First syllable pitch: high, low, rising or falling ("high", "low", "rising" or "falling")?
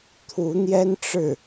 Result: rising